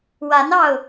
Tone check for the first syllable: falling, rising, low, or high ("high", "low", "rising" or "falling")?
rising